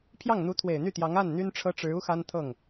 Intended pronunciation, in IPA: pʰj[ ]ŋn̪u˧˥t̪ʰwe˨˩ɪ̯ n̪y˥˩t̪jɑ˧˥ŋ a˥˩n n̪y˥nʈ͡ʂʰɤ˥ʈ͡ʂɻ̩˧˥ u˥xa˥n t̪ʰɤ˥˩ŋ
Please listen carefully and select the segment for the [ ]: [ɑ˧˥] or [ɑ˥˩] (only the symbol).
ɑ˥˩